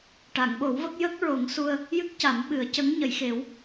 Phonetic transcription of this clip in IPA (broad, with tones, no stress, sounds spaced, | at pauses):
ʈ a˨˩˨ ŋ ɓ o˨˩˦ w v ə˦˥ k̚ j ə˦˥ k̚ ɹ o˨˩˦ ŋ s u˧ ə̯ | j ɨ˦˥ k̚ c a˨˩˦ m ɓ ɨ˨˩˦ ə̯ c ə˧˥ ŋ ɲ ə˨˩˨ j x e˨˩˦ w